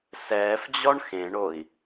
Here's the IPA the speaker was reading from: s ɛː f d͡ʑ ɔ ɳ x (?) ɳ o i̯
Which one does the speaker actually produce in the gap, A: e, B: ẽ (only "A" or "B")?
B